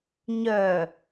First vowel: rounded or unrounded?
rounded